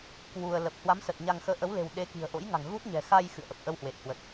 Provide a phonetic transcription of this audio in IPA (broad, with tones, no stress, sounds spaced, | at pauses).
k w u˧ ə̯ l ə˨˩ p̚ h w a˨˦ m s ə˨˩ t̚ ɲ a˧ ŋ x əː˧ ʔ ə˨˦ w l e̤˨˩ w ɗ e˨˦ k i̤˨˩ ə̯ ʔ o̰˧˥ j ŋ a̤˨˩ ŋ ɣ u˦˥ t̚ ɲ ɛ̤˨˩ x a˧ j x ɨ̰˧˨ ə̯ ʔ ə˨˩ p̚ ʔ ə˧ w h w e˨˩ t̚ h w ə˨˩ t̚